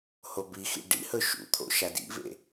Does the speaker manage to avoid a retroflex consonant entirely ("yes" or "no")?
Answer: no